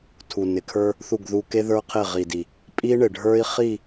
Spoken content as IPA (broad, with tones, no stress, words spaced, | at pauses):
tʰu˨ nɪ˨kʰə˞˦ | θu˦˨ɡðu˦ ke˦ðə˞˦qʰe˦˨ ʁi˨di˨ | pʼi˦ɳɪ˨ɖʱə˞˦i̯ χi˦˨